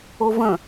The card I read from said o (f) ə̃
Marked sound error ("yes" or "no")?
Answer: yes